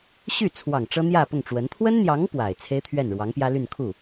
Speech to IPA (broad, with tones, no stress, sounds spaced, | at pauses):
ɕ y˥˩ t͡sʰ w ɑ˨˩ ŋ ʈ͡ʂ ɤ˥ n̪ j ä˥˧ p ʊ˥˩ ŋ ʈ͡ʂ w ə˧˥ n t̪ʰ w ə˥ n n̪ j ɑ˧˥ ŋ p w a˨˩ ɪ̯ t͡sʰ e˥ ɪ̯ t̪ʰ ɥ ɛ˥˩ n ɻ w ɑ˧˥ ŋ p j ä˥ l y˥˧ n kʰ u˥˩